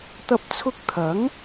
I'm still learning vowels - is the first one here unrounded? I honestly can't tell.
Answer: yes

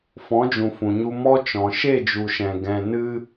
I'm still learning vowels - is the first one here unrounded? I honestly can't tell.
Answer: no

